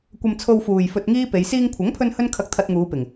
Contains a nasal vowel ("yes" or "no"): no